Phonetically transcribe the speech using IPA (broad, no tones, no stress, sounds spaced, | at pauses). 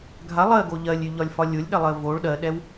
ɡʱ a lˠ ɜ ɡ o ʎ ɜ lʲ y ʎ ɒ lʲ f ɒ lʲ o lʲ ɗ ɛ lˠ ɜ v o ɭ ɗ ɜ ɗ ɛ w